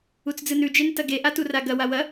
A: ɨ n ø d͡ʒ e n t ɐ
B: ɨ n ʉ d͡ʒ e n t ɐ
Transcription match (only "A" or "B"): B